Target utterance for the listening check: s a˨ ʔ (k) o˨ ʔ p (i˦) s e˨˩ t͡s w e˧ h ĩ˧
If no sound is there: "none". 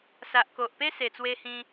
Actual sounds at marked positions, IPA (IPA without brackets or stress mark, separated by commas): k, e˦